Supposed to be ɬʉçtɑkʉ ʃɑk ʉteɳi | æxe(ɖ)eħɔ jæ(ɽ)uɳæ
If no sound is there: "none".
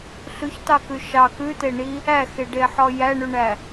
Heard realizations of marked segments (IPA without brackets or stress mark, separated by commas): ɖ, ɳ